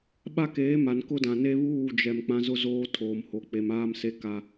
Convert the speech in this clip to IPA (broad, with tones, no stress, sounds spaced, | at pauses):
ɓ a˦ k eː˨˦ m a˨ n k ʊ˦ d ã˨ n e˦ β uː˦˨ d͡ʒ ɛ˨ m k͡p ã˦ z ʊ˦ z oː˦ tʰ oː˨ m h o˨ k͡p e˨ m aː˦ m s e˦ k a˦